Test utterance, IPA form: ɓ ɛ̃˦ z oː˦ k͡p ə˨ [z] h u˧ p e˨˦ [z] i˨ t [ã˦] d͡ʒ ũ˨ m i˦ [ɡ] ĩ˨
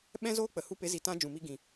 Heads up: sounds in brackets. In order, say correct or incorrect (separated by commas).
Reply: incorrect, correct, correct, correct